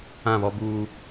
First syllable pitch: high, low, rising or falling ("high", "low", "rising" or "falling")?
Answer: falling